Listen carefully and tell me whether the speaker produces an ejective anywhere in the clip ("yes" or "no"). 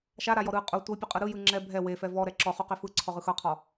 yes